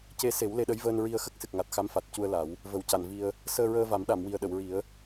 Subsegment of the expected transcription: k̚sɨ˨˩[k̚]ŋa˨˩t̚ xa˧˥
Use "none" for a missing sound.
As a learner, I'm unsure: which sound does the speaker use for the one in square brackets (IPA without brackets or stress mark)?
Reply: k̚